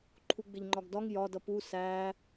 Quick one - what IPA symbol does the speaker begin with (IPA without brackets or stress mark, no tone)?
ǃʰ